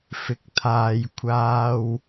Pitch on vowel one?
rising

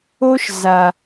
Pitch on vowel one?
high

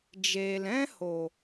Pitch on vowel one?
low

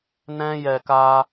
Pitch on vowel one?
high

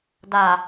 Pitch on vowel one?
low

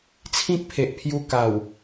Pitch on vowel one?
high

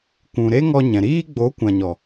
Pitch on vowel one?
low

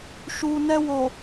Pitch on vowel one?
low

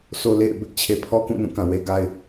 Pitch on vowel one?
high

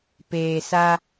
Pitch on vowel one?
low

